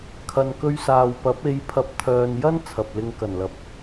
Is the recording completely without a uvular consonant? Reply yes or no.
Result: yes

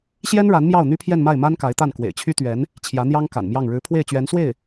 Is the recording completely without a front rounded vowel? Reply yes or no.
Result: no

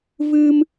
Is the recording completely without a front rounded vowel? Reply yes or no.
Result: yes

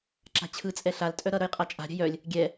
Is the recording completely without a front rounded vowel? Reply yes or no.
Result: no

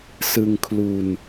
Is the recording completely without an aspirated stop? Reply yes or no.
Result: no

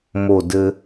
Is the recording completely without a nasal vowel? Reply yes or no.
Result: yes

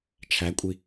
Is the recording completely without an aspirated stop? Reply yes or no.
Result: no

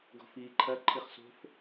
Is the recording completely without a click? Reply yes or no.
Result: no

